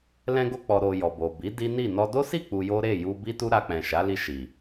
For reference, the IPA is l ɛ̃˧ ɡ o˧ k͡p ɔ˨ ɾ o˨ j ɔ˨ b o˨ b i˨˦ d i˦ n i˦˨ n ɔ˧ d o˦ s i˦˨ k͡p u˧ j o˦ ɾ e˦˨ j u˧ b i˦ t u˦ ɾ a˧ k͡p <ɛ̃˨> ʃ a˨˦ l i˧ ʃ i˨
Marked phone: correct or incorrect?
correct